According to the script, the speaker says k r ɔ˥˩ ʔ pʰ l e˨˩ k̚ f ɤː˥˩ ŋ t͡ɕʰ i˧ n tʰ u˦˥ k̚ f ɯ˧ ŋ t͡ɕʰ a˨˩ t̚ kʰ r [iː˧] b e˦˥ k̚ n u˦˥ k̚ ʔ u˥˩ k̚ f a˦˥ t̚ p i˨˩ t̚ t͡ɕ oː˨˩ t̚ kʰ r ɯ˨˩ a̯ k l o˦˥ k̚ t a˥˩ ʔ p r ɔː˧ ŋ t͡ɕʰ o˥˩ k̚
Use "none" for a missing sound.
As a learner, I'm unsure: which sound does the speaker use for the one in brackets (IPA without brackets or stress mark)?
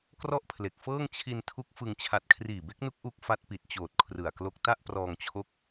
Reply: iː˨˩